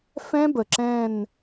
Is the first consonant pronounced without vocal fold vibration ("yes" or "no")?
yes